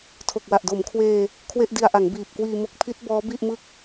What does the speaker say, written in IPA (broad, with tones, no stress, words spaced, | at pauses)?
tʰo˨˩k̚wa˨˩ʔdo˩˦mkʰweː˧ | kʰwe˥˩ʔdi˧a̯ʔa˩˦ŋ biː˨˩p̚kwiː˧mo˦˥k̚ pʰi˦˥t̚ bɔː˦˥bi˥˩ʔmɯ˥˩k̚